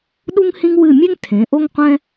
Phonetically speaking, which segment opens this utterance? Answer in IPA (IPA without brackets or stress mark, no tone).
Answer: ɗ